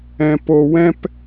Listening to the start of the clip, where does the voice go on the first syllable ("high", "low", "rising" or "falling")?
low